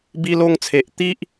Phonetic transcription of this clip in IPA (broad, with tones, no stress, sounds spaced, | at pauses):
b i˧ l o˧ ŋ t͡sʰ e˨ ʔ t̪ i˦ ʔ